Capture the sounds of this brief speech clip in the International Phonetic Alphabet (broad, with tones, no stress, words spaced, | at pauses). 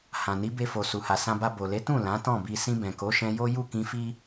hã˨ni˨˦be˧ fo˨ su˨ha˨sã˧ba˧ bo˨le˨˦tũ˦˨ lã˨˦tɔ̃˦˨bi˧ sĩ˧bɛ̃˨ko˨˦ʃɛ̃˧ jo˦ ju˦˨kĩ˧fi˦